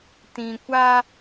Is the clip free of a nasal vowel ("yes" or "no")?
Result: no